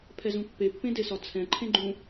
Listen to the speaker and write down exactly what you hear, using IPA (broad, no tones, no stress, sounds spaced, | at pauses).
pʰ ɛ z ũ pː e pː ẽ d e s ɒ t͡sʰ ɛ̃ ǃʰ ẽ ɡ͡ǃ ũ